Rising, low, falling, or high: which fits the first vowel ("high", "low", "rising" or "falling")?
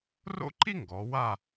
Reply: high